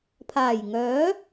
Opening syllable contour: low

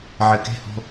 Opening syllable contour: low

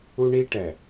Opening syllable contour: high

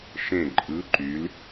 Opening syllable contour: falling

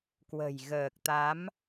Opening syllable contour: low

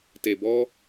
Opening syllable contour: low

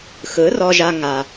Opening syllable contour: rising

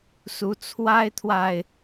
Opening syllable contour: rising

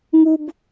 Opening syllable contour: high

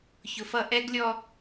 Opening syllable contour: low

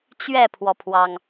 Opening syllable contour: falling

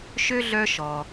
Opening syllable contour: high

